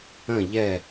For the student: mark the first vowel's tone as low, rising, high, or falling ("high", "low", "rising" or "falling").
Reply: falling